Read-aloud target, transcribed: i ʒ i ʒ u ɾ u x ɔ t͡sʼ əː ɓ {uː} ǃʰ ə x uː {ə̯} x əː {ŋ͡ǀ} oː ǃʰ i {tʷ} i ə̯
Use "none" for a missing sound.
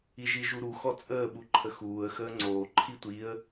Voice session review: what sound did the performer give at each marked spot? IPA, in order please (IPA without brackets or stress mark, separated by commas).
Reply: u, ə̯, ŋ͡ǀ, tʷ